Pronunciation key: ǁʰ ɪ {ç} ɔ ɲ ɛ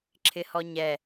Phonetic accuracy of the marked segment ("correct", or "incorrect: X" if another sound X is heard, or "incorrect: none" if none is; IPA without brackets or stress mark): incorrect: h